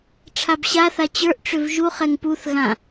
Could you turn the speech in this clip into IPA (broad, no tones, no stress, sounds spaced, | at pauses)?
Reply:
ʈ͡ʂʰ a b ɕ a θ a t͡ɕ ə˞ ʔ ʈ͡ʂ ʏ v ʒ u χ ɛ ŋ p u θ ɣ ã